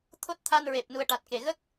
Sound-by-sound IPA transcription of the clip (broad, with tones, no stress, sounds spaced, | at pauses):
t̪ʰ o˦˥ t̚ t̪ʰ a˧ n ɹ e˨˩ p̚ n u˨˩ ə̯ ʈ a˨˩ t̚ k e˨˩ ɣ ə˦˥ k̚